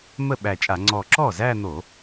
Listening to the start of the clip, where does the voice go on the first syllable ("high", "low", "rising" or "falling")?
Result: falling